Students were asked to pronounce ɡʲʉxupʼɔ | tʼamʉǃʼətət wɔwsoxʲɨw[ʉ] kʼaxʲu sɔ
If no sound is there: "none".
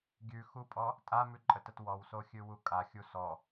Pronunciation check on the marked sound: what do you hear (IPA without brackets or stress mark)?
u